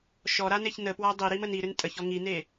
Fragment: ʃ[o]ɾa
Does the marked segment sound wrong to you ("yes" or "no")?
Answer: yes